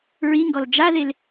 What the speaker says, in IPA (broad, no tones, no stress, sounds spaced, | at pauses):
ɹ i ŋ ɡ ɔ l d͡ʒ a ð e l